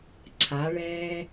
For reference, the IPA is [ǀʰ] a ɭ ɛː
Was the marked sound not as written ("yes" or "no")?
no